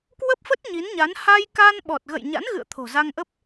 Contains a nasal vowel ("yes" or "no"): no